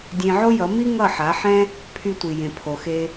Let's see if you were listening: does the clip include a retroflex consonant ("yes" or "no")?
no